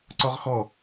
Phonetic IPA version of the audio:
ǀ ɔ ʁ x ɔ

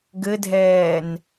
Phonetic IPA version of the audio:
ɡ ɘ dʱ ɛː n

